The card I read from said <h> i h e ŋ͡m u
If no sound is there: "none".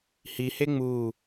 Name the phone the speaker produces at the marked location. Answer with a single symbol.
h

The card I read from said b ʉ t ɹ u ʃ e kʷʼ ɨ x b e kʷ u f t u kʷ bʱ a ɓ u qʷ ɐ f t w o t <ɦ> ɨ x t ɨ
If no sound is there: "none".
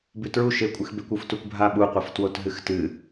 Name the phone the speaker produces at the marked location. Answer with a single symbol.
ɦ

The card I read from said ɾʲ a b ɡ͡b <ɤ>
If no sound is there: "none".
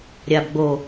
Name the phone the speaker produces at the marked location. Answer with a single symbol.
o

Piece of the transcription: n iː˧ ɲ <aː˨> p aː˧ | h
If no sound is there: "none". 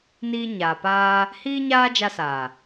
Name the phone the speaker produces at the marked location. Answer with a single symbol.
aː˨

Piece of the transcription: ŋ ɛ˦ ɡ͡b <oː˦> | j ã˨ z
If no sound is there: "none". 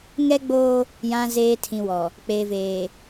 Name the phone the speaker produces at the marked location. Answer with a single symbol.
oː˦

